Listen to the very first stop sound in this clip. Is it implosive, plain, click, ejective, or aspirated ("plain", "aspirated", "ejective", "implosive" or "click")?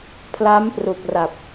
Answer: aspirated